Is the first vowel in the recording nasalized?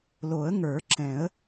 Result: no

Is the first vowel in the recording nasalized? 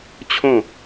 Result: yes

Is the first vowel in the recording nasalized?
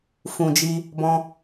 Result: yes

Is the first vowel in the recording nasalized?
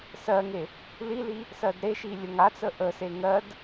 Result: no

